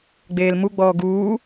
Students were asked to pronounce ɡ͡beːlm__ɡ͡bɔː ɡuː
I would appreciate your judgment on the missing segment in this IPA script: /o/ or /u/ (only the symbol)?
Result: u